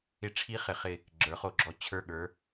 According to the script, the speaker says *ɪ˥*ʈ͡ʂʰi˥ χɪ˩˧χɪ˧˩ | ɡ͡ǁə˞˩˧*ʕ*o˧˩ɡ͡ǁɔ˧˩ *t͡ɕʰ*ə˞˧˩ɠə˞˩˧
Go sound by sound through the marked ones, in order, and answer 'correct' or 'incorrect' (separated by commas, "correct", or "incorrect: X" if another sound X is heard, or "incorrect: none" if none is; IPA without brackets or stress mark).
correct, incorrect: χ, correct